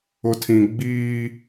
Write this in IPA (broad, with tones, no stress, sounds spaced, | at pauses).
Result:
ʊ˨ tʰ ĩ˨ ɡ͡b iː˦